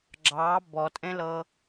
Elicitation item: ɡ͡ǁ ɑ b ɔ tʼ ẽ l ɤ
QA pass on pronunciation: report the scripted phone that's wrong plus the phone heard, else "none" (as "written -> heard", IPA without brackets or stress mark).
none